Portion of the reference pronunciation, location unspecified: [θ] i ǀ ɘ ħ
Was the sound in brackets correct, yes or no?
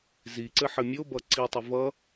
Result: no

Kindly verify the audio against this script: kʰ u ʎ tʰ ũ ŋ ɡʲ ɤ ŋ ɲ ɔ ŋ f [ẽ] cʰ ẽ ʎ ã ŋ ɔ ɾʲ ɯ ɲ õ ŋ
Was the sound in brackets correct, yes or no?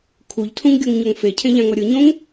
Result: no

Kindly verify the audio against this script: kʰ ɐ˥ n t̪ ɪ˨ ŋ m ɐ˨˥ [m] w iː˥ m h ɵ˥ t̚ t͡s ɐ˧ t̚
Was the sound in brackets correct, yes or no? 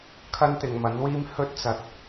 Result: no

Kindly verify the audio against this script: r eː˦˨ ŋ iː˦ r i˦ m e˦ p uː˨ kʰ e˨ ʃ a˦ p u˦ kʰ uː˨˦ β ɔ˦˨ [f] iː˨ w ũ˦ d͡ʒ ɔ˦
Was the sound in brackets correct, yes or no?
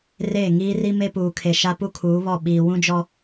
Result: no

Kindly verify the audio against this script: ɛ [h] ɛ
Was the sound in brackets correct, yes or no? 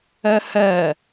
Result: yes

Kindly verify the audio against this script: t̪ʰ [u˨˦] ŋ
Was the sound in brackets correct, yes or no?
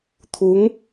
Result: yes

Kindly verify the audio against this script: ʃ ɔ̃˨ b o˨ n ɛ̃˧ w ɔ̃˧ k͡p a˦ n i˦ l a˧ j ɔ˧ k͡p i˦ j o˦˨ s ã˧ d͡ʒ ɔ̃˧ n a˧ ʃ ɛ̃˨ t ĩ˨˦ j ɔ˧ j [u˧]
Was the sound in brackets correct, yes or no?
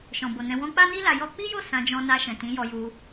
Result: yes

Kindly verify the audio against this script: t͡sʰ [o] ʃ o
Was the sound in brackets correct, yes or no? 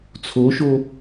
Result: yes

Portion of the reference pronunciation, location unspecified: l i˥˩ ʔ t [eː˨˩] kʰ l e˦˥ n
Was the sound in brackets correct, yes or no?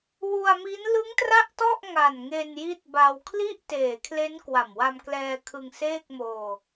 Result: yes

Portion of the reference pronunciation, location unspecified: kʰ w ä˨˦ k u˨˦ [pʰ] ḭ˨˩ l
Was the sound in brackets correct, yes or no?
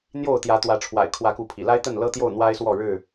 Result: yes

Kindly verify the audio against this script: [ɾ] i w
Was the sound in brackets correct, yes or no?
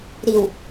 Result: yes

